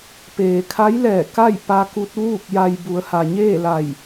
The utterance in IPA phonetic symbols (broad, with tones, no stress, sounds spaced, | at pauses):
p eː˩ kʰ a˧˥ j l ɛː˧˩ k a˥˨ j p a˧ k u˧ t̚ ʋ uː˥˨ k̚ j a˧ j b u˩˧ ə̯ h a˩ ɲ eː˥˨ l a˧˩ j